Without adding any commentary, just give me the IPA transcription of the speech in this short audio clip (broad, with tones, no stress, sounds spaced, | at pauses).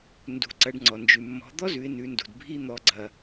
n d ṳ˩˧ ǀ ɐ˩˧ ɖ ŋ͡ǀ ɔ˩ n d͡ʒ ʉ˩ mː ɔ̤˩˧ d̪ ɔ˥ z ʉ˩˧ ɪ̯ n ʉ˩˧ n d ṳ˩ d bʱ i˧ n̪ ɔ˩˧ ɡ͡ǀ ɐ˩